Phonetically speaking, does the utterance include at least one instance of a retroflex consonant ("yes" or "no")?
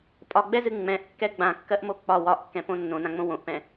no